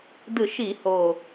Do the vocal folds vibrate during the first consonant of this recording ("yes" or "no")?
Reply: yes